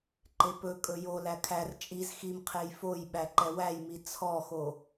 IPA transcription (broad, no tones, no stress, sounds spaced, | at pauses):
ǃ e p ɵ kʼ ɵ j o l æ kʰ æ r t͡ʃʼ i z x i m qʰ e j f o j ɓ æ ǃ ɛ w æ j m i t͡sʰ ɔ x o